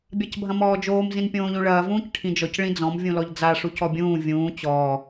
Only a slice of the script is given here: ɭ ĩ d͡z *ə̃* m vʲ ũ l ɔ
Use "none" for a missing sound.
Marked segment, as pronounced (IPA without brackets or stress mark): ɔ̃